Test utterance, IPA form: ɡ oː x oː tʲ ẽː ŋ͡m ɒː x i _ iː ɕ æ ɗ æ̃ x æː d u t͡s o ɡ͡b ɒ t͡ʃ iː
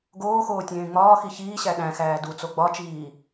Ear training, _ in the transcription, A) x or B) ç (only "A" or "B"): B